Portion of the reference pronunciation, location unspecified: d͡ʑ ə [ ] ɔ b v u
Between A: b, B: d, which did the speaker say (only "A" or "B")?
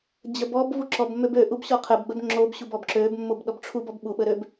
A